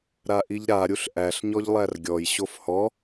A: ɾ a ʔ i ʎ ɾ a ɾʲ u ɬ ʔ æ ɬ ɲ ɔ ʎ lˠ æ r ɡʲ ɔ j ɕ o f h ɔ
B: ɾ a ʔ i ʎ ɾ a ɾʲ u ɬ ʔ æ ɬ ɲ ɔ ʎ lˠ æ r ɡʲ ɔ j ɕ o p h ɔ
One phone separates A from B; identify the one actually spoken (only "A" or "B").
A